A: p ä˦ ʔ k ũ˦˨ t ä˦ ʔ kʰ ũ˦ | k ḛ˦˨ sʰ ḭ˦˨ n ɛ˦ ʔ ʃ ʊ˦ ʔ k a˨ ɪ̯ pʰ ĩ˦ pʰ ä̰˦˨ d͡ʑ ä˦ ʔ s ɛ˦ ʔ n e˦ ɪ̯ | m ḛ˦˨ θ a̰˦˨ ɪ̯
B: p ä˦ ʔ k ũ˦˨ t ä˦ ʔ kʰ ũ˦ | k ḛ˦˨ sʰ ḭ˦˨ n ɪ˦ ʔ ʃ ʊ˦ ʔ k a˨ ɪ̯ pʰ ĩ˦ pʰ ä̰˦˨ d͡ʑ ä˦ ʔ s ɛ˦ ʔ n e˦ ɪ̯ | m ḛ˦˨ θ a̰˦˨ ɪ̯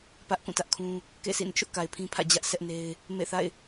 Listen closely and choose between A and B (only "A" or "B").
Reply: B